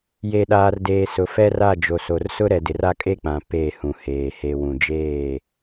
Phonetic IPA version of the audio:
j e˨ ɗ aː˨ r d eː˨ s ʊ˨ f ɛ˦ r a˦˨ d͡ʒ o˨ s o˨ r s ʊ˦ ɾ ɛ˨ d ɪ˨ r a˦ kʼ e˦ k͡p ã˨ p e˦˨ h ũ˨ h eː˨ h e˨ w ũ˨ d͡ʒ eː˦˨

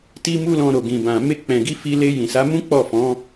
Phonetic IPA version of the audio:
t i˦ m u˦ l ɔ̃˧ ɾ o˨ ɡ ĩ˨ b ã˨ m e˧ k͡p ɛ̃˨ ɡ i˧ f i˧ l e˧ j ĩ˨ s a˨˦ m ũ˦ k͡p ɔ˦˨ f ɔ̃˨˦

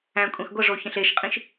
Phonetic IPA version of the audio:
æ̃ kʷʼ ẽ x ɡʷ ə ʐ o ç ə̃ ɬ e ʃ qʼ ĩ ʃ

